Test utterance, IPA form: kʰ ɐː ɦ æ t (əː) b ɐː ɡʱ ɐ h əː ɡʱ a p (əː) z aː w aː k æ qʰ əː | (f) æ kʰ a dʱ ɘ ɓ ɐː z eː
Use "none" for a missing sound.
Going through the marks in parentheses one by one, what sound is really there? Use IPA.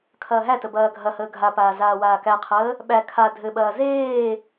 ə, aː, ɓ

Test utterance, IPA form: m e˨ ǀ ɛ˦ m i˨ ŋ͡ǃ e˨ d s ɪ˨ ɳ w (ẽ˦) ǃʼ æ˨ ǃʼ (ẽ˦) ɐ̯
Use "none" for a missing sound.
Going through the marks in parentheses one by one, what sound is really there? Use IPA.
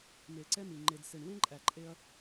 ẽ˦, e˦

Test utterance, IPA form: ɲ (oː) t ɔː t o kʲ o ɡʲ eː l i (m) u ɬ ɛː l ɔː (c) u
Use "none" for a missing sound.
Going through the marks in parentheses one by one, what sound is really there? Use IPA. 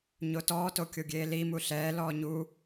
o, m, ɲ

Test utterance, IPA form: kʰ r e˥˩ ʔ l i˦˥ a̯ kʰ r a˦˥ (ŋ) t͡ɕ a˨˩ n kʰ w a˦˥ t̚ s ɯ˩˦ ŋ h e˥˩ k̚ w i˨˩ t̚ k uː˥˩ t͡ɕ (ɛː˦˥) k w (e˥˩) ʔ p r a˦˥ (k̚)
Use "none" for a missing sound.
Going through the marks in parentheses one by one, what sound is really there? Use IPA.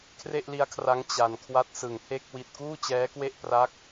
ŋ, ɛː˦˥, e˥˩, k̚

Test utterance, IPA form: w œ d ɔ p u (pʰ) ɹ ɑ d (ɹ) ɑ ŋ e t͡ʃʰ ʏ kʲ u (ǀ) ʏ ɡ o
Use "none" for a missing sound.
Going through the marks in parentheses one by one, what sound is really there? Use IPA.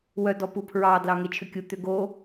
pʰ, l, t̪

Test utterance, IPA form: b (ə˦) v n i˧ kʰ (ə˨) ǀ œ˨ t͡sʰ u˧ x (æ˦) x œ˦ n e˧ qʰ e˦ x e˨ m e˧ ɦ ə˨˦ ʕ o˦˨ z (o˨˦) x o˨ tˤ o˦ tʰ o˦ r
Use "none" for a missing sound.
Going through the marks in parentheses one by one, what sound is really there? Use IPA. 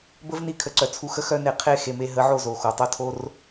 ə˦, ə˨, ə˦, o˨

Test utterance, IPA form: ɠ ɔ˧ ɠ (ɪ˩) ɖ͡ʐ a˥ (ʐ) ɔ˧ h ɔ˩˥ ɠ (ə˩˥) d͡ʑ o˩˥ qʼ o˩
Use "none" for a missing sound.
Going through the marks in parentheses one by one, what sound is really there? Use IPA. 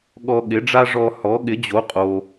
ɪ˩˥, ʐ, ɪ˩˥

